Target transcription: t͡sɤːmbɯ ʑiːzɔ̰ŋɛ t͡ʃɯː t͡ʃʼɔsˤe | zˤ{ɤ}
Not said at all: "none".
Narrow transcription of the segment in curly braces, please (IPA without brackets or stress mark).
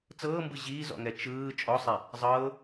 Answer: ɤː